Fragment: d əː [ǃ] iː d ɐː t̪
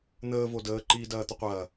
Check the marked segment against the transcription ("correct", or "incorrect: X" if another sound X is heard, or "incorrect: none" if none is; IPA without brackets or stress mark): correct